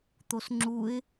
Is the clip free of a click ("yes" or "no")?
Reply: no